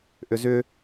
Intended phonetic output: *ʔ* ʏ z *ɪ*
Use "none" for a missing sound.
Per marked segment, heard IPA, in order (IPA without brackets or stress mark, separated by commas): ʔ, ʏ